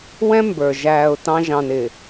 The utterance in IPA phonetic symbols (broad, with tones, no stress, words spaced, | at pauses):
wɛ̃˦ mbə˞˨ ʒæː˨ʊ̯ tɑ̃˦ ʒɑ̃˨n ɪ˨